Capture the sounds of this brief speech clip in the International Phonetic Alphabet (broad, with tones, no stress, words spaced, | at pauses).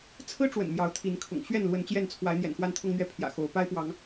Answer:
t͡sʰɹ̩˦ ʈ͡ʂwə̰˨˩nmjɑ˨˦ʊ̯ t̪ʰi˨˦nkʰʊ̰˨˩ŋ ɕɥɛ˥˨nlwə˨˦n t͡ɕjɛ˥˨nt͡sʰwa˨˦ɪ̯ n̪jɛ̰˨˩nxwa˦nt̪ʰʊ˦ŋn̪ɥɛ˥˨ pʰjä̰˨˩ xo˨˦ʊ̯ pa˦ɪ̯pwɑ˨˦ŋ